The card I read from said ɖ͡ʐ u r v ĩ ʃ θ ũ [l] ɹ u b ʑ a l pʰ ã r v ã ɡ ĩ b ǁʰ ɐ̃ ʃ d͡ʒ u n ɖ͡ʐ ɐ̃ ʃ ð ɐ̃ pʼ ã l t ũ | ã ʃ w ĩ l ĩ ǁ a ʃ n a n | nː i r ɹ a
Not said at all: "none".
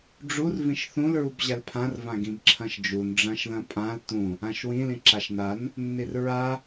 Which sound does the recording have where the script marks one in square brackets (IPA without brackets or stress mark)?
l